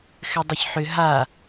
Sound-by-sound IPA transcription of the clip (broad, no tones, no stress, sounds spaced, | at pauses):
x ɘ dˤ ɘ ç ħ ʏ ɦ a